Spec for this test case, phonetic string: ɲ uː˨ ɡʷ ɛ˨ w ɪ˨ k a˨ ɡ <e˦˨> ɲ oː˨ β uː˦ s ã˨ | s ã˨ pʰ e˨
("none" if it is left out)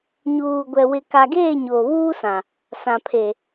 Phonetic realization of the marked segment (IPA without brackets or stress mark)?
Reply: eː˦˨